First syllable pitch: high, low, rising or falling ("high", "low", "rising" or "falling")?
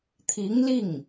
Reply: rising